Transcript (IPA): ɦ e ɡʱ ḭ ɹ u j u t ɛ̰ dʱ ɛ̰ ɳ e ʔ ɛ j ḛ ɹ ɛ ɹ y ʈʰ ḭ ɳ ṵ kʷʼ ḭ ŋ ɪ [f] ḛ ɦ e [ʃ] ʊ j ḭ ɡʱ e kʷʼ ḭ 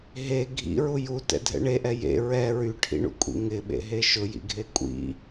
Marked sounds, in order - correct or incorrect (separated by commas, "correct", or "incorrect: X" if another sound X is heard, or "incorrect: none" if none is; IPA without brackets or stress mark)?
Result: incorrect: ɓ, correct